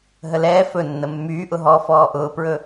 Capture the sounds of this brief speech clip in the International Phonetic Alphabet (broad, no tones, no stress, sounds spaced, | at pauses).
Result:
ɦ ə l ɛː f ɵ nː ə mː yː ʔ ʊ ɦ ɔ f ɔː ʔ ʊː p ɹ ɵ